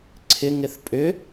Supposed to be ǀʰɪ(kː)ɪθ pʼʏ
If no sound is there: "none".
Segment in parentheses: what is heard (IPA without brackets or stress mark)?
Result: ŋ